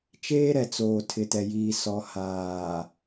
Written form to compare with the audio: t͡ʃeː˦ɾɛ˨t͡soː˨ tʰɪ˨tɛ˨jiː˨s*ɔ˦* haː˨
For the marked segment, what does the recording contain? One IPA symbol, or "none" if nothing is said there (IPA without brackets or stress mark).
ɔ˨